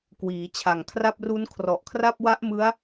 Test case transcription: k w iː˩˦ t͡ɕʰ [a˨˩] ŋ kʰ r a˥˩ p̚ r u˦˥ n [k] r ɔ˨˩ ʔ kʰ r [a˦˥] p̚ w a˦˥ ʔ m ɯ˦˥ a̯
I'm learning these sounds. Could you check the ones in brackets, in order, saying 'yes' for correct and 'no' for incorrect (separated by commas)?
yes, no, no